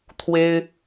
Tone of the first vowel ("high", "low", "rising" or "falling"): high